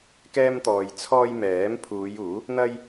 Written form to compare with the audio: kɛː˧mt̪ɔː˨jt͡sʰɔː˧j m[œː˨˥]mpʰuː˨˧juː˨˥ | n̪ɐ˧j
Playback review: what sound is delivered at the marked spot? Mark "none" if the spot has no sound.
ɛː˨˥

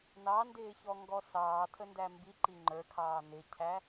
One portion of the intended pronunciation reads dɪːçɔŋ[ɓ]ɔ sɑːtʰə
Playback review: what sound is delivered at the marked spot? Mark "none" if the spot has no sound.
ɡ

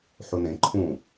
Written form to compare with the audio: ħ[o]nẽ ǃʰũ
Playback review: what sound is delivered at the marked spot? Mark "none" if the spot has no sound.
u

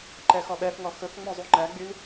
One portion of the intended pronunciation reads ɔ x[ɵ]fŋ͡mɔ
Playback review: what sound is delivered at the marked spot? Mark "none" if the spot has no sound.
ɵ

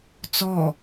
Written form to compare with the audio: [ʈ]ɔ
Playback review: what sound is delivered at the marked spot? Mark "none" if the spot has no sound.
t͡s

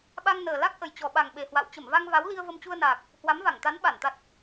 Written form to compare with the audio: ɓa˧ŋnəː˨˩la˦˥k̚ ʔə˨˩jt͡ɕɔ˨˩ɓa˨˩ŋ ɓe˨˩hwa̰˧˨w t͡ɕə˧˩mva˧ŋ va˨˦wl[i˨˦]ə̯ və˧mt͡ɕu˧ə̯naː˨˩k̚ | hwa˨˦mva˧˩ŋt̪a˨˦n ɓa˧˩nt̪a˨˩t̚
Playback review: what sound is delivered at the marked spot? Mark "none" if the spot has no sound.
i˧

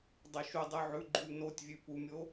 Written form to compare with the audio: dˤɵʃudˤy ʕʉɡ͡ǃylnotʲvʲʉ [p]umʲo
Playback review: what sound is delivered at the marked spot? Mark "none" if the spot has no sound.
p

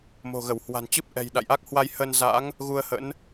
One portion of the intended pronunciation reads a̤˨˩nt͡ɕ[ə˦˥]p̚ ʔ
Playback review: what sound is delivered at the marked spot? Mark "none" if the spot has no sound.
ɨ˦˥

